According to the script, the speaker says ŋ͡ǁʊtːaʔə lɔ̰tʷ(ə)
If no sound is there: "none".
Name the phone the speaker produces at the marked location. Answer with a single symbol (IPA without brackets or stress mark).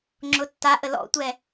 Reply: ɛ